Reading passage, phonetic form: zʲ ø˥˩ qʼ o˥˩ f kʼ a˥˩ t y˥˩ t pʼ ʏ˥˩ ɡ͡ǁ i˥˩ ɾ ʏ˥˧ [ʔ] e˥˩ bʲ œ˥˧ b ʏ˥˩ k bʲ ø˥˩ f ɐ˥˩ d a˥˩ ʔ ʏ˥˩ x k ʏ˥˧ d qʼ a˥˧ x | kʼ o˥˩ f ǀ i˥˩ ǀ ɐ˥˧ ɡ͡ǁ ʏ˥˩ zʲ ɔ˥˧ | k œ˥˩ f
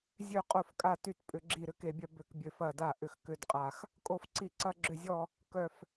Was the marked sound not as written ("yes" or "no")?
yes